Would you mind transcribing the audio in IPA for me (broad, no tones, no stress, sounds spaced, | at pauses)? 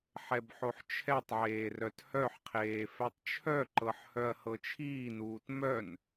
ħ ɛ b ħ o ħ t͡ʃʰ ɛ tˤ ʕ eː r œ t h œ ħ qʰ eː f ɛ tˤ t͡ʃʰ œ ǃ ɤ ħ h œ ɐ̯ h ɤ t͡ʃʰ iː n uː t m œ n